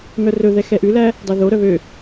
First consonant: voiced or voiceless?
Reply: voiced